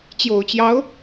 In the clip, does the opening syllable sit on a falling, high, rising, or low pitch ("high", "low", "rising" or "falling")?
low